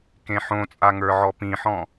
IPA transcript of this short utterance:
k ẽ ħ õ t͡sʼ a ŋ ə˞ ʕ ɔ p ĩ ħ ɔ̃

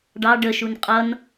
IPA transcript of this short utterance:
ɖ ɑ ɖ ə ʃ u n qʼ ʌ n

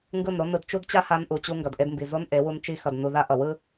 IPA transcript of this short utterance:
ŋ ɡ ɯ˦˨ n ɾ o˦ n ɯ˧ d t͡ʃ u˦ d t͡ɕ a˦ h a˧ n ʔ u˨ t͡ɕ u˧ ŋ ɡ ʌ˨ d ʔ e˧ d m b i˨ z o˦ n ʔ e˨˦ w u˧ n t͡ʃ i˧ x ʌ˨ d n u˧ ð a˦ ʔ ʌ˨ w ɯ˦

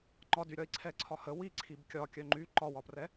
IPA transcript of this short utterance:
ŋ͡ǃ ɒ d y ɾʲ ɒ i̯ ǀʰ ɛ ǀʰ ɒ h ə w i ǀʰ i b kʲ ɒ kʲ œ ŋ͡ǃ y ǃ ɒ w ɒ p r ɛ

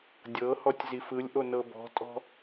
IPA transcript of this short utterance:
dʲ ɤ h ɔ tʲ z i f ɯ lʲ ʔ o n ɤ b ɔ̤ tʼ ɔ̤

